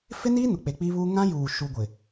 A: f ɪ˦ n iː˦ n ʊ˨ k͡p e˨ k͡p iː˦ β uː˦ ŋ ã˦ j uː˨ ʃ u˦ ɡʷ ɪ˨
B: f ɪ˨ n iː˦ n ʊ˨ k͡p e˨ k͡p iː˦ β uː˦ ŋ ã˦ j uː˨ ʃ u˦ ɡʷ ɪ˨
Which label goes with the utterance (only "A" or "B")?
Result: A